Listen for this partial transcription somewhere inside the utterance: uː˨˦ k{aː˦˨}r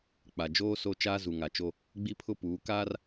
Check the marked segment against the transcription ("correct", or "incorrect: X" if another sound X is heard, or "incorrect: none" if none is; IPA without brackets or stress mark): incorrect: aː˦